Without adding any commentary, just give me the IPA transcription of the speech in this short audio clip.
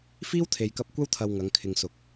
f iː˥ w t̪ʰ e˨ j k ɐ˧ p̚ kʷ ɐ˥ w t̪ʰ ɐ˧ w ŋ ɐ˨˧ ŋ kʰ ɪ˨ ŋ s ʊ˨ k̚

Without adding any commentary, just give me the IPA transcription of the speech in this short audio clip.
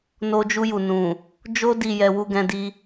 n o˧ d͡ʒ u˧ j u˨ n ũ˨ | d͡ʒ o˦ d i˦˨ j ɛ˧ w u˧ ɡ ɛ̃˧ d i˧

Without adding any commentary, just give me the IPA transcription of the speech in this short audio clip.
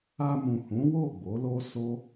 a˧ m ũ˨ h ũ˨˦ w o˦˨ ɡ͡b o˨˦ l o˦ s o˦

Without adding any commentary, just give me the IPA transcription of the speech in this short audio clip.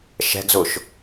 ʃ ɛ̤ ɡ z ʊ ʃ

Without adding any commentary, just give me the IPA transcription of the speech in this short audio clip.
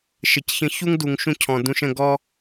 ʃ ə˨ c ç ə̃˧ ç u˦ ŋ d u˨ ŋ ʃ ũ˧ cʰ ɔ̃˨ d ũ˧ ʃ ə̃˧ ɡ ɔ˧

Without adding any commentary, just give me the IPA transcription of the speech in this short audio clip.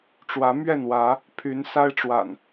ʈ͡ʂ w ä˨˦ m ɥ ɛ˥˨ n w ä˨˦ | pʰ y˨˦ n s a˦ ɪ̯ ʈ͡ʂ w a̰˨˩ n

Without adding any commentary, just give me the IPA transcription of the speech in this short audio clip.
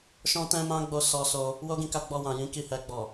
ʃ ɔ̃˦ t ɛ̃˦ m ã˦ ɡ͡b o˦ s ɔ˧ s o˧ | w o˦ ɡ ĩ˧ k a˧ ɡ͡b ɔ˧ w ã˨ j ĩ˨˦ k i˦˨ h ɛ˧ ɡ͡b ɔ˨

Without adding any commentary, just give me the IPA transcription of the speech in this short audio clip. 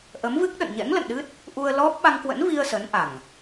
ʔ ə˨˦ m v ɨ˦˥ k̚ ɗ ə̰˧˨ n ɲ ɛ̰˧˥ ŋ l ə̰˧˨ n ɗ ɨ˦˥ t̚ | ʔ u˧ ə̯ l ɔ˦˥ p̚ ɓ a˧ ŋ k w ə̰˧˥ n v i˧ ə̯ s ə˨˦ n ʔ a˨˩ ŋ

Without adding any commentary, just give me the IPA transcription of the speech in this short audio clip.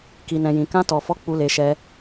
k i˨ n ɛ̃˨ j ĩ˨ k ã˧ t ɔ˨ f ɔ˨˦ k͡p u˧ l e˧ ʃ ɛ˧

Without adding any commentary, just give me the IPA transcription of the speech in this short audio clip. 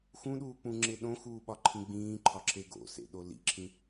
x ũ ɗ uː k͡p ũ ŋ͡ǁ e ɗ õ x uː ɓ ɒ ǃʰ ĩ ɡ͡b ĩː ǃʰ ɒ ǁ e ɡ o̰ s ḛ ɗ o l ḭ ǁʰ ĩ

